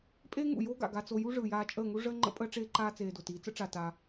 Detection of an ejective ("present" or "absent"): present